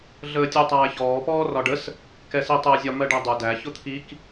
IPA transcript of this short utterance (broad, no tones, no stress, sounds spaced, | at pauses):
ɮ əː tʲ u tˤ æː ç ɔː p ɔː r ɒ ɖ ə s | k ɛ s i tˤ əː zʲ ɒ m ɜ ɖ æ dˤ u d æ ç ʊ t̪ʰ i k